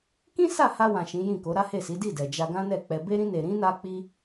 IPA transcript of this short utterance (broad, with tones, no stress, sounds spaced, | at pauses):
k ĩ˦ s a˦˨ h a˧ w ã˨ ʃ ĩ˨˦ j ĩ˦˨ k o˨˦ ɾ a˦ h e˦˨ s i˨˦ d i˦˨ d ɛ˨ d͡ʒ a˧ ɡ ã˦ n ɛ˦˨ k͡p ɛ˧ b e˦ ɾ ĩ˦ n e˧ ɾ ĩ˦ n a˦ k͡p i˦